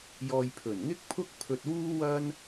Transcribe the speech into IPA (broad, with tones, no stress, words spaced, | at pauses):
jɔː˧j pʰɵ˨˩nŋɪ˥k̚pʰʊ˥k̚ pʰɵ˧t̚wuː˥wɐ˥n